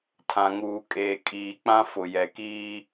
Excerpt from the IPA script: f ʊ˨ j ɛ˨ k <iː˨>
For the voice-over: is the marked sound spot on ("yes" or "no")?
no